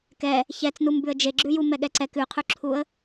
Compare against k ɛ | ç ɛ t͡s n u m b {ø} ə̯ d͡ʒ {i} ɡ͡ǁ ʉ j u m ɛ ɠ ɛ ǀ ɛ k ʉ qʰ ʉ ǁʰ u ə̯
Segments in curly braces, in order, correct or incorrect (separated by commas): incorrect, incorrect